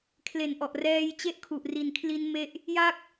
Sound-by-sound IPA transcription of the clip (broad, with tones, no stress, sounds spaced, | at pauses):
kʰ l e˨˩ n ʔ ɔ˨˩ ʔ r ɛː˧ j t͡ɕ e˦˥ ʔ kʰ u˨˩ ʔ r i˨˩ n kʰ l i˦˥ n m e˦˥ ʔ | j a˦˥ k̚